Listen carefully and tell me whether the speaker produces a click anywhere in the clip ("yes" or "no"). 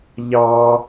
no